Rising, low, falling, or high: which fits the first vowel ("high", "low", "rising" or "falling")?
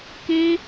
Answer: high